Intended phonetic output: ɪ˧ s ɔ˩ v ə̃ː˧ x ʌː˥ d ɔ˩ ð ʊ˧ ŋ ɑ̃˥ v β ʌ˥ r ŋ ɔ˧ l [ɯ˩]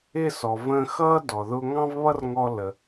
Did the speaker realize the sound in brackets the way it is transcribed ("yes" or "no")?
no